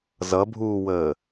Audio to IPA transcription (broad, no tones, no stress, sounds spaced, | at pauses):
z ʌ bʱ uː w əː